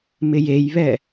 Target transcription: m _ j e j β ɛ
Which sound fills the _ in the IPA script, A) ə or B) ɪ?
B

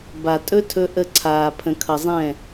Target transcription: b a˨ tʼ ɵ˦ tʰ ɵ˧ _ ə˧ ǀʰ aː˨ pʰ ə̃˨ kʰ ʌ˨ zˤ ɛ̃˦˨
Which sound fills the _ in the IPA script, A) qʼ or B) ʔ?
B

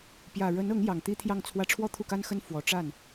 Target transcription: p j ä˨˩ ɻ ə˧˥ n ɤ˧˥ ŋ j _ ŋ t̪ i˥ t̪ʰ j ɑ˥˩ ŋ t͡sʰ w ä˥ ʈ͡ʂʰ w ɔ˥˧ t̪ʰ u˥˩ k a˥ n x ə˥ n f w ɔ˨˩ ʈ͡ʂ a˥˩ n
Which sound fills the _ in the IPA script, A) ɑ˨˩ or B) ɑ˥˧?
A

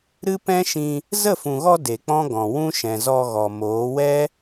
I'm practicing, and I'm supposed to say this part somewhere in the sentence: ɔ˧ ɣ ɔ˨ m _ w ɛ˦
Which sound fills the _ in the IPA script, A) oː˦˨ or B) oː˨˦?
B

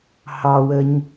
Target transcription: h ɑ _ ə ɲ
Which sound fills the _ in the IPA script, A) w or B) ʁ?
A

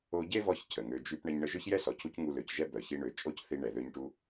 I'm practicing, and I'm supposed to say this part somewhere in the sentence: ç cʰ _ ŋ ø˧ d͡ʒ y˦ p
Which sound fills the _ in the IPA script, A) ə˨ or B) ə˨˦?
A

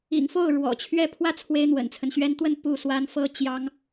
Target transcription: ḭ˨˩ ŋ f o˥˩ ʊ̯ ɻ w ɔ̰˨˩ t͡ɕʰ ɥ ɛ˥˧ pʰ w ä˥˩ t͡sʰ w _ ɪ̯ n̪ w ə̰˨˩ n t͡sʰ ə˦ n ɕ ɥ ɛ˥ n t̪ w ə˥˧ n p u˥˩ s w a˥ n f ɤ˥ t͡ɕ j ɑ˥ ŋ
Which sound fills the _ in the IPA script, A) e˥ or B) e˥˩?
A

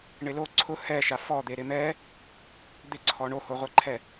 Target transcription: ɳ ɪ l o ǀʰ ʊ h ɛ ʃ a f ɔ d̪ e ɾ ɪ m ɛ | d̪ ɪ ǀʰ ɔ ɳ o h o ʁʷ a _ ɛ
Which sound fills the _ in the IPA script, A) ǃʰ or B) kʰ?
A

